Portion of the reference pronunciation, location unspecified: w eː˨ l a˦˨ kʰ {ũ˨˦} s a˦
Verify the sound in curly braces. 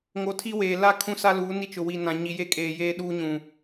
incorrect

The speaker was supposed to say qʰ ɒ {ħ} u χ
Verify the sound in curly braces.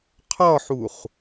correct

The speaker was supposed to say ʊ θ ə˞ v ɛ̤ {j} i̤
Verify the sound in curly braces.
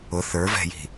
correct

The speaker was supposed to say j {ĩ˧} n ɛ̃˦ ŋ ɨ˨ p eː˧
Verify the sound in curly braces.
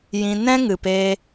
correct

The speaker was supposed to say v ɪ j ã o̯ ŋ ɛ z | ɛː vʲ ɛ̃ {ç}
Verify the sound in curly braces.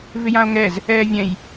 incorrect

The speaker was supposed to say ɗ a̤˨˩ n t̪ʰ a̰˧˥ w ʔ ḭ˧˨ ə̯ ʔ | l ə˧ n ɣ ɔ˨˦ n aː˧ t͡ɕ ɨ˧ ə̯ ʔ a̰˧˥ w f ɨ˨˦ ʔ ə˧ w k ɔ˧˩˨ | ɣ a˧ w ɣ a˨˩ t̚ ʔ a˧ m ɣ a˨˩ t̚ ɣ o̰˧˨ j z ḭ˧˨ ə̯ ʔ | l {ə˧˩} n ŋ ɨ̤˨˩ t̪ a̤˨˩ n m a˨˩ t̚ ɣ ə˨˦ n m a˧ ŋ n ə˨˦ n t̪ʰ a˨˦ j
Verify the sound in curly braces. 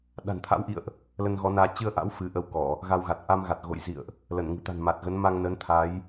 correct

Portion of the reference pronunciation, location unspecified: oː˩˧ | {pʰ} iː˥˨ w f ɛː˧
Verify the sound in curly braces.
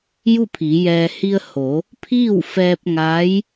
correct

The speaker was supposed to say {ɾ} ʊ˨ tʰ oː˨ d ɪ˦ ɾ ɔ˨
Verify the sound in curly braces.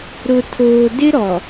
correct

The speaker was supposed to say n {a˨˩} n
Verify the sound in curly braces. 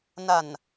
correct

